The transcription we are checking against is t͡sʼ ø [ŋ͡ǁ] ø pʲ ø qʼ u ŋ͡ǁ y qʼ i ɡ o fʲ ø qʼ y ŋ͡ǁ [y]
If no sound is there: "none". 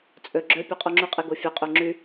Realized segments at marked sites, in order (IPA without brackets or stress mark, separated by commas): ɡ͡ǁ, y